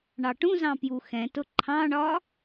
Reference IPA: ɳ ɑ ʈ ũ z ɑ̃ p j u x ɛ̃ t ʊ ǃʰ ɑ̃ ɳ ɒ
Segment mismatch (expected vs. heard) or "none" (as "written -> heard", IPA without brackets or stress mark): none